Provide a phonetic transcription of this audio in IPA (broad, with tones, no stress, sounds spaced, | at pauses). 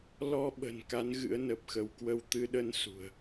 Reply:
l ɔ˧ ɓ ə̤˨˩ n k a˨˦ n ɣ ɨ̰˧˥ ə̯ n ə˨˩ p̚ x ə˧ w k w ə˧ w t̪ ɨ˧ ɗ ə˧ n s ṳ˨˩ ə̯